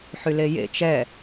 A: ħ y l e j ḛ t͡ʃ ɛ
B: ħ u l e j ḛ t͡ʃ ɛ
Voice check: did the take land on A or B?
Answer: A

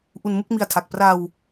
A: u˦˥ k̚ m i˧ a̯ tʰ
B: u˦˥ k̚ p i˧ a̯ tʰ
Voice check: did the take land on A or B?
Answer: A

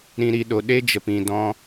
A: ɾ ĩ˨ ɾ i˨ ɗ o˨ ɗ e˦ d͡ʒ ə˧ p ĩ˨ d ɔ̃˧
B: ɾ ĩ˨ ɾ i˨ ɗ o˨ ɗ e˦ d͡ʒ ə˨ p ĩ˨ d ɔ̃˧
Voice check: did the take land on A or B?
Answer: B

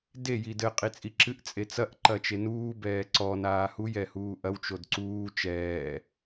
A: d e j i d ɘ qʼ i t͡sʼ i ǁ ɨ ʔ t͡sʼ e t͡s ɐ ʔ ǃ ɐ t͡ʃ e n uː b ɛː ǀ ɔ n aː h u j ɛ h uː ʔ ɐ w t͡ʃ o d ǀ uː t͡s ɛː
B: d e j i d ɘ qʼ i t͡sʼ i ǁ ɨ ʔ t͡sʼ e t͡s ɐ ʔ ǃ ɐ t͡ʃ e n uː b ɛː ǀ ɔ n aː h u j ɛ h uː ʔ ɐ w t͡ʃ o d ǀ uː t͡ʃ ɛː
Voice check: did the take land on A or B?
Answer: B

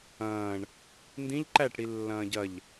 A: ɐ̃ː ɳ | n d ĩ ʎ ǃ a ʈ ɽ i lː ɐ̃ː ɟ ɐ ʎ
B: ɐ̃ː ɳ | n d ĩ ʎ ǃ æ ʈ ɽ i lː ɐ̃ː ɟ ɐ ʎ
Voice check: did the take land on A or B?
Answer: B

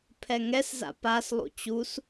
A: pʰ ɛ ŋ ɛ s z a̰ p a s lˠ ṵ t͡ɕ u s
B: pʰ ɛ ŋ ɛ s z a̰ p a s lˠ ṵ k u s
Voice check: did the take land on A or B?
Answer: A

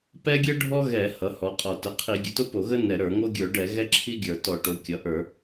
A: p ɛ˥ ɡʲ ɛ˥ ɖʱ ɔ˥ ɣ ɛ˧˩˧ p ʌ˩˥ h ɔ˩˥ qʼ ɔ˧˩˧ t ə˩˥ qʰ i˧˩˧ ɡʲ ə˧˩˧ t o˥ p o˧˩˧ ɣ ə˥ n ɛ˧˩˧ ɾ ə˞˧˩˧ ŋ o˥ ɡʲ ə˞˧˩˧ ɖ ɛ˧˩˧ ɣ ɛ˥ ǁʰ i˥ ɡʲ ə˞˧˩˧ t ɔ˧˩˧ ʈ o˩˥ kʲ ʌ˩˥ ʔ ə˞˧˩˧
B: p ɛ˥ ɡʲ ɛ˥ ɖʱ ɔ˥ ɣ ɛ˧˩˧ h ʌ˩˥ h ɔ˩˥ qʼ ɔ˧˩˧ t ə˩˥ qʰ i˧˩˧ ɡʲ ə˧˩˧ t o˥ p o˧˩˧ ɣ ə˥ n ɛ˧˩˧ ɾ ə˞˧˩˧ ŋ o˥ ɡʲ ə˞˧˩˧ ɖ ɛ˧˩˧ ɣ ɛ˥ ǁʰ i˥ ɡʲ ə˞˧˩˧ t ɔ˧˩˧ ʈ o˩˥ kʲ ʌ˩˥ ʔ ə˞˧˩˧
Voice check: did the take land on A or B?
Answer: B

